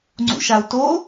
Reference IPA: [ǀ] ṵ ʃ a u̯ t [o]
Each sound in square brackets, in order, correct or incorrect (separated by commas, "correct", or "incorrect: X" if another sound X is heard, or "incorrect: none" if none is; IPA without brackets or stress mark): incorrect: ŋ͡ǀ, correct